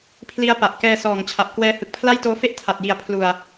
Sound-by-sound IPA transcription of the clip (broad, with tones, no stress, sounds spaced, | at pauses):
pʰ l i˦˥ a̯ p a˨˩ ʔ k ɛː˧ s ɔː˨˩ ŋ t͡ɕʰ a˨˩ p̚ k w ɛː˦˥ h ɯ˨˩ k̚ pʰ l a˥˩ j t oː˦˥ f e˦˥ ʔ tʰ a˨˩ t̚ j i˨˩ a̯ pʰ l u˨˩ a̯